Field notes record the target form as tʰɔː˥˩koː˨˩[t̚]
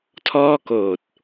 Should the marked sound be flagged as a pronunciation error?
no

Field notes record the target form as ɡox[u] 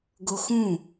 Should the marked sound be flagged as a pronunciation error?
yes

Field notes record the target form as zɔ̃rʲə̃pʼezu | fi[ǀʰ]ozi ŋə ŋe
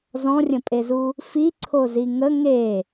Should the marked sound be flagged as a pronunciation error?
no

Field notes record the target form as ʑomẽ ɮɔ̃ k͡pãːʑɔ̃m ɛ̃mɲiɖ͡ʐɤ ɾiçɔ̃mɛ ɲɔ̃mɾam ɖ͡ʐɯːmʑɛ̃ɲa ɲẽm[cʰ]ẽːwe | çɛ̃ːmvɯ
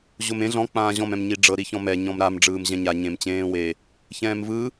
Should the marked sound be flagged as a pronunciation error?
yes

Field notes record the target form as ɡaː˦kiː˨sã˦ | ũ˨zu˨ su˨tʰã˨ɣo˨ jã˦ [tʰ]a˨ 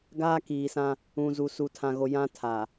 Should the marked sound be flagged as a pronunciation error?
no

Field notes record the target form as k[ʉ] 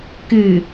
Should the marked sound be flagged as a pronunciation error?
yes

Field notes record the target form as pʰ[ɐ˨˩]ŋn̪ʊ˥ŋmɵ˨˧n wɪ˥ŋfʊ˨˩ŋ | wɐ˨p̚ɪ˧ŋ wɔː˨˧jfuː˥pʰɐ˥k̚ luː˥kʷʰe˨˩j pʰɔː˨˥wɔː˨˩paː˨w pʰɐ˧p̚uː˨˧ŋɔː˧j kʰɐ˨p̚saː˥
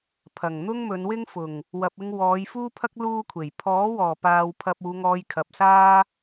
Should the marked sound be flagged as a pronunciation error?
no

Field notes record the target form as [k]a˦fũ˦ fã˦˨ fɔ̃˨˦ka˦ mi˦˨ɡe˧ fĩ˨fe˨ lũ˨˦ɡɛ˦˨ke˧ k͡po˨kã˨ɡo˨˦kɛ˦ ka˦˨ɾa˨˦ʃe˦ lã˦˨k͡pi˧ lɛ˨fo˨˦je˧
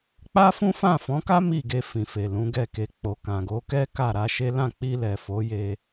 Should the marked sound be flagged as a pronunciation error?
yes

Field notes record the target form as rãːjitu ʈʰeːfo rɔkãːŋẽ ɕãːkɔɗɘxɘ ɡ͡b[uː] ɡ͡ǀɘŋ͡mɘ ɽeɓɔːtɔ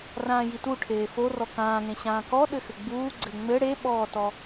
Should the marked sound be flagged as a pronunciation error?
no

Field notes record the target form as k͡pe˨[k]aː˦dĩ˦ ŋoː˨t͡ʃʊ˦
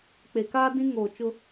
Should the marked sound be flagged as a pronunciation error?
no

